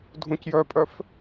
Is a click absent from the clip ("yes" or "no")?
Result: yes